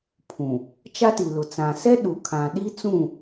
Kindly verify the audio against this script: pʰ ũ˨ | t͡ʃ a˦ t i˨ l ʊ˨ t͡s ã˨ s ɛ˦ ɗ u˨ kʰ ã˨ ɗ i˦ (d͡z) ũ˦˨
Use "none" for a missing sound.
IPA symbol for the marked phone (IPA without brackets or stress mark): t͡s